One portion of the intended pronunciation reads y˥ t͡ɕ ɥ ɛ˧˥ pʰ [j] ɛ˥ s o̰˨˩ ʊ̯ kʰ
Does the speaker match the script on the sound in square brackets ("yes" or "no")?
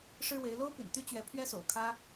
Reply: no